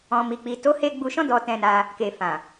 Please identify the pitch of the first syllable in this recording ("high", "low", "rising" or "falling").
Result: low